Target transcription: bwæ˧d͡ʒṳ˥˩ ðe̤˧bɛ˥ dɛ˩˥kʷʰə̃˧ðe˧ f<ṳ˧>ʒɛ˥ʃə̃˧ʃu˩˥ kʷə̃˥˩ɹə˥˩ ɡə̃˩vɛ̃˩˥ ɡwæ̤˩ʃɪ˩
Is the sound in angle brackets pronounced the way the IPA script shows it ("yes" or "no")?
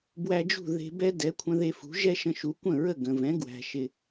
no